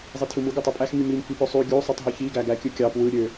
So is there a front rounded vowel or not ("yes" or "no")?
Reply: yes